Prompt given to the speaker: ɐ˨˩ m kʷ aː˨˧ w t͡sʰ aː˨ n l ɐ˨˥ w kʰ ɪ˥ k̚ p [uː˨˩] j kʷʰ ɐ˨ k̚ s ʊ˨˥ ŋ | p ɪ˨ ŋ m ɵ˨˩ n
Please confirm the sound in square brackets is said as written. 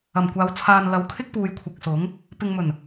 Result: no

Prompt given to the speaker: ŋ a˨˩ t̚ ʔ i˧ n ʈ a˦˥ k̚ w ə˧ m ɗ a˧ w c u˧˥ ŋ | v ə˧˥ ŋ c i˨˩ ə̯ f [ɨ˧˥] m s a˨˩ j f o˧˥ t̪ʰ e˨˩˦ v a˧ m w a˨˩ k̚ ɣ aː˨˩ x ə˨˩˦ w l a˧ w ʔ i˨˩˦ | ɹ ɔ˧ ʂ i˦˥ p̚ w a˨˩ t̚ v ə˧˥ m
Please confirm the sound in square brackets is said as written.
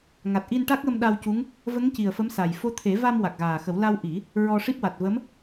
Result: no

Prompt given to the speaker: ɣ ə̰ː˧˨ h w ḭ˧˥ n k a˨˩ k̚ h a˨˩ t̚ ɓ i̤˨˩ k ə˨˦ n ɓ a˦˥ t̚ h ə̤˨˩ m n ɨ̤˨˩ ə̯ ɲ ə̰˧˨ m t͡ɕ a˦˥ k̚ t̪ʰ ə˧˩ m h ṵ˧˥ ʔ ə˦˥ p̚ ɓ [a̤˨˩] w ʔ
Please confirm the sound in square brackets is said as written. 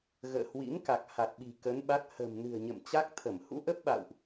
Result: no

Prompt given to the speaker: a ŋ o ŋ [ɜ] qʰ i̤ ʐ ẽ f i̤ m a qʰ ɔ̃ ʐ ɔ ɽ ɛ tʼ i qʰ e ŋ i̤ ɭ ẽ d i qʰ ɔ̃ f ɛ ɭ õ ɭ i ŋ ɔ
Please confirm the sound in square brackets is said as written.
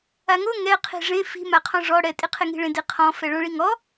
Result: no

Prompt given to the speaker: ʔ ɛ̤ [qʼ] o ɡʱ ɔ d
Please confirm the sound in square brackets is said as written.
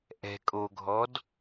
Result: no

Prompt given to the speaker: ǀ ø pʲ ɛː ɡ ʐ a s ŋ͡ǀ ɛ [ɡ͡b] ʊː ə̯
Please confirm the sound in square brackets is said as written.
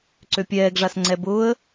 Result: no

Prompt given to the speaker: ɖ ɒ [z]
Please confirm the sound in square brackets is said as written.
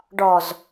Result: yes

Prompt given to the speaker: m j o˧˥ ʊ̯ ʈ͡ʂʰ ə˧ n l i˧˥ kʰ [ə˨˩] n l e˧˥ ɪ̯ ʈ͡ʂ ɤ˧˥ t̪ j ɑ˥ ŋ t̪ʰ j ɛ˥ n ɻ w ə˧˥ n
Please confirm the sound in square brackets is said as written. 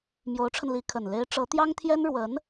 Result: yes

